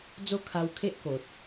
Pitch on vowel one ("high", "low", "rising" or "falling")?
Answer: high